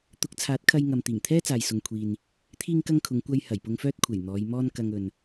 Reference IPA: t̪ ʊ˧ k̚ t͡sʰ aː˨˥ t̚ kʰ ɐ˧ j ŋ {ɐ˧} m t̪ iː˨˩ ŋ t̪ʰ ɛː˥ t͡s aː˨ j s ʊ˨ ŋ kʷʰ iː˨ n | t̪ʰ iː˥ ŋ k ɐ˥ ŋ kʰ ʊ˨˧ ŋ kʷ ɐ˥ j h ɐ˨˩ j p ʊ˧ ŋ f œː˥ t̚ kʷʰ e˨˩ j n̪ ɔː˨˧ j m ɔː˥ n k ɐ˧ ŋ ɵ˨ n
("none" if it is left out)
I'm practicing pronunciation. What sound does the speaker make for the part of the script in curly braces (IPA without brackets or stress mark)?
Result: ɐ˨